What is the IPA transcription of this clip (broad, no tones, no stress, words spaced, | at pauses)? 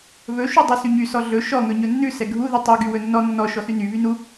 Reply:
βɵ ʃudˤʉsyɲy sɔɮɵ ʃɔ ŋɵɲɵnːʉ sɛɡʱu ðytˤu ɡywɵnːɔ nːɔ ʃɔsyny βynu